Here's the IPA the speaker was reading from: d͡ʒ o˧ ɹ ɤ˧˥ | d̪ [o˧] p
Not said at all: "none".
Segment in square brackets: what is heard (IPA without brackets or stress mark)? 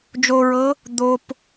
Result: o˧